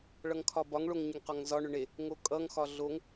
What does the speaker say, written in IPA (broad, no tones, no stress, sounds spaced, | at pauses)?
ɭ ʌ ŋ kʰ ɒ b ɒ ŋ ɭ o ŋ ɲ ʏ ŋ q ɒ ŋ z ɒ ɳ ʏ ɳ e | ŋ o kʼ ʌ ŋ x ɒ ɮ o ŋ